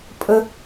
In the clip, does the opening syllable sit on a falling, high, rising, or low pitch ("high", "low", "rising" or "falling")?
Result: high